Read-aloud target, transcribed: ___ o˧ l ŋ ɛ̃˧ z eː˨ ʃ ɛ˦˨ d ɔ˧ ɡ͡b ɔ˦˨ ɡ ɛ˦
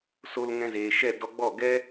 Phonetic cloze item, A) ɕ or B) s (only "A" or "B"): B